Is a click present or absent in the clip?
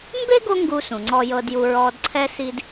present